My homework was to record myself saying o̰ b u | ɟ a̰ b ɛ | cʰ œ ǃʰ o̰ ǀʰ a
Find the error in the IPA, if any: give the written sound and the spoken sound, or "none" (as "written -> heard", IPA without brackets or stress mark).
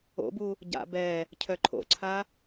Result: none